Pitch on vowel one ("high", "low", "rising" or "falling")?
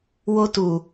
high